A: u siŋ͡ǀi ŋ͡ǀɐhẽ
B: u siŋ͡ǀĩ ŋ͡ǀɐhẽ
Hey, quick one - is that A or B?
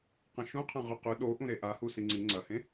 A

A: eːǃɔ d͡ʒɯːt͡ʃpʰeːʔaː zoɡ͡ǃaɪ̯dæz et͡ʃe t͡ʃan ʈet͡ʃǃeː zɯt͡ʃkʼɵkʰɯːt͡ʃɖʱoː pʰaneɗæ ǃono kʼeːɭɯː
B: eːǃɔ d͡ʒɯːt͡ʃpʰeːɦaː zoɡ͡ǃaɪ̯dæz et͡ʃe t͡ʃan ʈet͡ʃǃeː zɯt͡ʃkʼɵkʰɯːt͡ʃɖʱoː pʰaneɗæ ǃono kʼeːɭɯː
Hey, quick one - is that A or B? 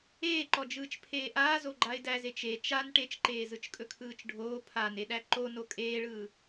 A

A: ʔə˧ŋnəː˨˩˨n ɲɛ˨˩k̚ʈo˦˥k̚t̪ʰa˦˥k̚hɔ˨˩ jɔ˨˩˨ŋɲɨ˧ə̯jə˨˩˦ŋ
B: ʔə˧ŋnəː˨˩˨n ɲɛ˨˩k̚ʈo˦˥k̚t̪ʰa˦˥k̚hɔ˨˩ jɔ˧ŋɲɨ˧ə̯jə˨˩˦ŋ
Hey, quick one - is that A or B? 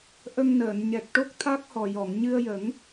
A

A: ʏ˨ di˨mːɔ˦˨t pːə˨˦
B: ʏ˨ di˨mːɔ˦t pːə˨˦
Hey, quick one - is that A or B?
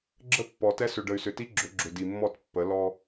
A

